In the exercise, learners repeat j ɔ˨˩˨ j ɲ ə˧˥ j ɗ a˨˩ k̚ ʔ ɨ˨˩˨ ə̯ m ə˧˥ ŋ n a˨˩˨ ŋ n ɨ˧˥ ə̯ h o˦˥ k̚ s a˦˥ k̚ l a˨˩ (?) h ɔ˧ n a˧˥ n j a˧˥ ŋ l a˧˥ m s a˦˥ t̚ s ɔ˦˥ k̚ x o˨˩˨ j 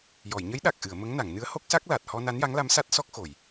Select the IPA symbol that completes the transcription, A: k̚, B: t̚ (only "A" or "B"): B